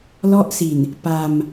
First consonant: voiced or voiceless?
voiced